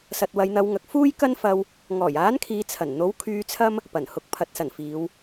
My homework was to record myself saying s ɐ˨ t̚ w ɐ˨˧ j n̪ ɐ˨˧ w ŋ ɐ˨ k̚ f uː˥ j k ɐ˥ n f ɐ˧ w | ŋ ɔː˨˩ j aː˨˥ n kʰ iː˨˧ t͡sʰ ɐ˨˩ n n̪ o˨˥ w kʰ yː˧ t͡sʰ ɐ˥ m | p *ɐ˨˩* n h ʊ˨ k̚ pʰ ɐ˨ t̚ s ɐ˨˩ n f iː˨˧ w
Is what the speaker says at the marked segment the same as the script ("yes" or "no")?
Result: yes